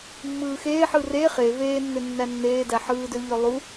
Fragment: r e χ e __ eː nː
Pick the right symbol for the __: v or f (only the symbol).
v